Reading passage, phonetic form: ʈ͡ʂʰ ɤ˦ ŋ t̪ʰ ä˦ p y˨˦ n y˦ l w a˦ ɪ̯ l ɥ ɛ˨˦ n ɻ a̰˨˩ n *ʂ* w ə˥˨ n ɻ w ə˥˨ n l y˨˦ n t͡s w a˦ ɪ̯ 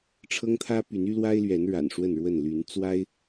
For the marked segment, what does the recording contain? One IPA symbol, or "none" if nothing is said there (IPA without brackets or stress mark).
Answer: ʂ